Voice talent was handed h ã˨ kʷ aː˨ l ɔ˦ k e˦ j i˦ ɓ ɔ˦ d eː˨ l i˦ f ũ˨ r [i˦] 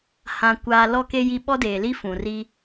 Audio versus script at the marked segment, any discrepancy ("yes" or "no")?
no